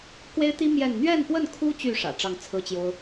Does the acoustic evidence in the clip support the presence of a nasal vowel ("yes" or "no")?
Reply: no